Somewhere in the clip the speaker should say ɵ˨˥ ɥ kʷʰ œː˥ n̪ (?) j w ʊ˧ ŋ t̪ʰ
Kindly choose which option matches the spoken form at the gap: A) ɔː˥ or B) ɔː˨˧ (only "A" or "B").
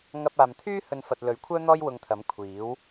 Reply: A